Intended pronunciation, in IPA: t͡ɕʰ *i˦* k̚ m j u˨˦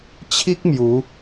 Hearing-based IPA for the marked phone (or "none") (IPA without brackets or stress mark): i˦